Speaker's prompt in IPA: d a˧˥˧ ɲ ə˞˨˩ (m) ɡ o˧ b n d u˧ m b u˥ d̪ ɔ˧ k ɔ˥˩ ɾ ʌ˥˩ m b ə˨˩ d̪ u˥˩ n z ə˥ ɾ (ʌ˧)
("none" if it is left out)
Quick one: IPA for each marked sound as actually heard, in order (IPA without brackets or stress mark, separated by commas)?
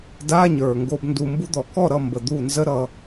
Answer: ŋ, ʌ˧